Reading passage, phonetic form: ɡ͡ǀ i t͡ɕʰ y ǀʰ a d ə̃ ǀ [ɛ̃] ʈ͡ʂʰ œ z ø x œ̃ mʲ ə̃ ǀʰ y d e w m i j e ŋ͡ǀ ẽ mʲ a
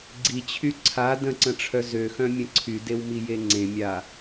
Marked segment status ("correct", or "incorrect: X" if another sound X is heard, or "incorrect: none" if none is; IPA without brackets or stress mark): incorrect: ə̃